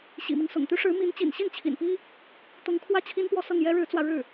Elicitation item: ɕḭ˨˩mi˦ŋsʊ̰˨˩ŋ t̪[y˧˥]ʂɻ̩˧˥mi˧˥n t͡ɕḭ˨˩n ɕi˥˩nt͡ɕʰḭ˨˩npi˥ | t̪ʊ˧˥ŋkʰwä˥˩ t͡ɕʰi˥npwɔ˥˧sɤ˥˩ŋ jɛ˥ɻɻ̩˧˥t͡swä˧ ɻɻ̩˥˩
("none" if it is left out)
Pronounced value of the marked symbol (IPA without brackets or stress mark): y˧˥